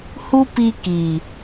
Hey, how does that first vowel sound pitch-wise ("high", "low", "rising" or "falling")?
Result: high